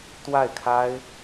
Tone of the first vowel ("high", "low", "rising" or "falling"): falling